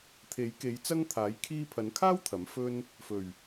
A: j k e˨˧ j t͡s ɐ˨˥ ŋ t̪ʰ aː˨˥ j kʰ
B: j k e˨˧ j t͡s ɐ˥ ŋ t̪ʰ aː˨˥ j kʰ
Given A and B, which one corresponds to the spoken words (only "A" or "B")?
B